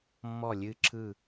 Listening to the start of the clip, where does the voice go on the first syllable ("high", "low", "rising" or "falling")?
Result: falling